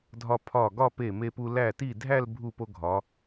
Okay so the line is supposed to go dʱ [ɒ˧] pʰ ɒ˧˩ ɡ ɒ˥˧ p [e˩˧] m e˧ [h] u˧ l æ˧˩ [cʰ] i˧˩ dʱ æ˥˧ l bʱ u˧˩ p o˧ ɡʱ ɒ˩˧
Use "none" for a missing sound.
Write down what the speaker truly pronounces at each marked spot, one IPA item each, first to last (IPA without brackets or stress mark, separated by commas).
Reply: ɒ˧, e˧˩, p, t